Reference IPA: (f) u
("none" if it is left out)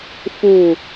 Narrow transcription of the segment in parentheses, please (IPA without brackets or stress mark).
f